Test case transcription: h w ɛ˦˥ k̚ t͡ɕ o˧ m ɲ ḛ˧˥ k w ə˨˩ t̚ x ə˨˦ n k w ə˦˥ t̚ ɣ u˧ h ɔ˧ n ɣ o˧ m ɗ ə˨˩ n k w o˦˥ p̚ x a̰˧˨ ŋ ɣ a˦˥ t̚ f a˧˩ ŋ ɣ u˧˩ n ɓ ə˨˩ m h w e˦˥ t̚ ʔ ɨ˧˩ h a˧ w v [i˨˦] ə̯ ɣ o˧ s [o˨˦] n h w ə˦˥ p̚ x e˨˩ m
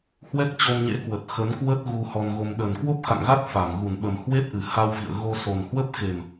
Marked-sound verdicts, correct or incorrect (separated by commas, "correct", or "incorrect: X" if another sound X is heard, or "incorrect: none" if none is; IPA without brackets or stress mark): incorrect: ḭ˧˨, incorrect: o˨˩